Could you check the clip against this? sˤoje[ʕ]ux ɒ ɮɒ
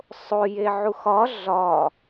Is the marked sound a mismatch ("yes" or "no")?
no